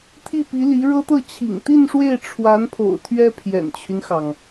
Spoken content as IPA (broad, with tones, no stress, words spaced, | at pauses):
t̪ʰi˥˩pi˧˥li˧˥ ɻɤ˥t̪ɤ˥˩ t͡ɕʰḭ˨˩ŋt̪i˥˧n ʂwe˥˩ɪ̯ ʈ͡ʂʰwa˧˥npʰo̰˨˩ʊ̯ t̪ʰɥɛ˥ pʰjɛ̰˨˩nt͡ɕʰy˦nxɑ˩ŋ